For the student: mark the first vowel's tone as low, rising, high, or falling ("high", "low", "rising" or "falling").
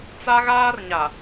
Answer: high